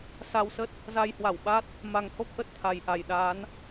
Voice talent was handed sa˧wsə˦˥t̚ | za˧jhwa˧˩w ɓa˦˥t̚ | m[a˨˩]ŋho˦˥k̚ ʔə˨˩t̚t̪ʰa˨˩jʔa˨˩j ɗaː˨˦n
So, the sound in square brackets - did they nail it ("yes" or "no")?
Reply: yes